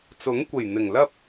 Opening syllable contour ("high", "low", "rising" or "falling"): rising